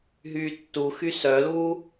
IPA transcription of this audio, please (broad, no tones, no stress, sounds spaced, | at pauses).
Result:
ɦ yː tː u x y s œ l uː